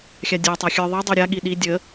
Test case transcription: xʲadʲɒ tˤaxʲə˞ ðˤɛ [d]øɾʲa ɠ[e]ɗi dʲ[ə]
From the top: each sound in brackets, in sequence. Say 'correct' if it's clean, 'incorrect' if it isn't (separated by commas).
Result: incorrect, incorrect, correct